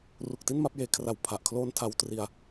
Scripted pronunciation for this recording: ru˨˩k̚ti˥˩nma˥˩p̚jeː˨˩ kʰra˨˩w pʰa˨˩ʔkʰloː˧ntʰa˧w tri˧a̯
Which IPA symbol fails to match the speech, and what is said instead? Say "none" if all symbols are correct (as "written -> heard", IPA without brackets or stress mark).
none